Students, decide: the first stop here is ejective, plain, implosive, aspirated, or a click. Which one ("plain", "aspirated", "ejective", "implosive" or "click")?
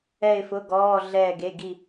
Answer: plain